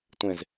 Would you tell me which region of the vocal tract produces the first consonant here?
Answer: tongue tip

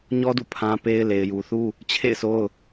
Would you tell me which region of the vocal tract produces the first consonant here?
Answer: palate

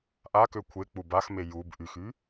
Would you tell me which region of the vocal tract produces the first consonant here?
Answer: throat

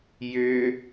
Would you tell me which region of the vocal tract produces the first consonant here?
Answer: palate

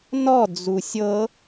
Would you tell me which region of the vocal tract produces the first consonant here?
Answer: tongue tip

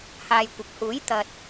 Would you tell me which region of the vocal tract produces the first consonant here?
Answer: throat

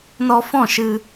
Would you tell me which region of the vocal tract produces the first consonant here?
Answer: tongue tip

